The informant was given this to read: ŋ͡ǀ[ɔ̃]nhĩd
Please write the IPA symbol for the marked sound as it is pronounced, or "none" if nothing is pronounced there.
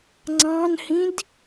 ɑ̃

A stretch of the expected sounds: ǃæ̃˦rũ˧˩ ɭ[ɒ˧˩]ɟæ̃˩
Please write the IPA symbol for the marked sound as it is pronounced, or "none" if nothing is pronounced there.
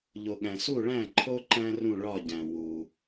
ɒ˧˩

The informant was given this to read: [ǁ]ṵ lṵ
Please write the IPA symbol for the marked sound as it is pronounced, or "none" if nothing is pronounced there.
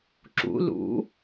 ǁ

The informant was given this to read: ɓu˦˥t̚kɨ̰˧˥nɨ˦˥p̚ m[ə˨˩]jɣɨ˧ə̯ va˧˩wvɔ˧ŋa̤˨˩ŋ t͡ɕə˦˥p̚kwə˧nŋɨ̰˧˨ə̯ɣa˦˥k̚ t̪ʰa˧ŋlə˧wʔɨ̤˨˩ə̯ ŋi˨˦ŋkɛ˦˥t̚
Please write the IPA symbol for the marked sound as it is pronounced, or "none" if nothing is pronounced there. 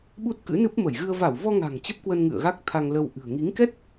ə˧˩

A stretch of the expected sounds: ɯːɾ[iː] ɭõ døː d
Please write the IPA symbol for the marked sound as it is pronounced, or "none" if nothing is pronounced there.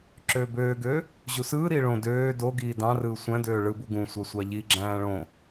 iː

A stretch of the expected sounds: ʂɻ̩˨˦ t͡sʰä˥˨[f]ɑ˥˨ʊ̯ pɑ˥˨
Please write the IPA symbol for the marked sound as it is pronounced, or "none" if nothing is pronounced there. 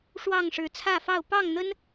f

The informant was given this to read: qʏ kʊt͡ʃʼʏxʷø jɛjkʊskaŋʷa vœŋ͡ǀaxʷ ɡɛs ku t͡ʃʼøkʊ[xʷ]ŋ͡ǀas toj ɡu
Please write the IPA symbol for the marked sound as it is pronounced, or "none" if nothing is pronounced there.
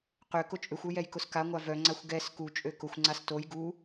xʷ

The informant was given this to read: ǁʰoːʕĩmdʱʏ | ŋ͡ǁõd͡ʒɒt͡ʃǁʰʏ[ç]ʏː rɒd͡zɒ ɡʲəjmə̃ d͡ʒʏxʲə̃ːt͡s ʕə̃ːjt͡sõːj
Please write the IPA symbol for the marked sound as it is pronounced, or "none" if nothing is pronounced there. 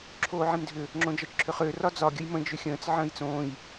χ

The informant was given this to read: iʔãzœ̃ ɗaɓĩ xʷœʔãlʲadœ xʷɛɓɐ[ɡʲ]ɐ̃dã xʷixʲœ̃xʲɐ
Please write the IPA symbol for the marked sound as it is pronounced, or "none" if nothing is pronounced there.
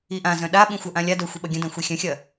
ɡʲ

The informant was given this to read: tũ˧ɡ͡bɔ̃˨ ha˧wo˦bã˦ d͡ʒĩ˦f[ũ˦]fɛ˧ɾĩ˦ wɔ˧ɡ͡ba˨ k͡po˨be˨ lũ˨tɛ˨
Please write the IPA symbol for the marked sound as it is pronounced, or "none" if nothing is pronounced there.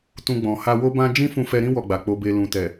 ũ˧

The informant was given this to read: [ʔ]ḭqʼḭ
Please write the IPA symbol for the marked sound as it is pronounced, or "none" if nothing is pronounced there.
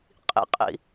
qʼ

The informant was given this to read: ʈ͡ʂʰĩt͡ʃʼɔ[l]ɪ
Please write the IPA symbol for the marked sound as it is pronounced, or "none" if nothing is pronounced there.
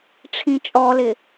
l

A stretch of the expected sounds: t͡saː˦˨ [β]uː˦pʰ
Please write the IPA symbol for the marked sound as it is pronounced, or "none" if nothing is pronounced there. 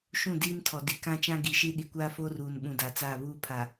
β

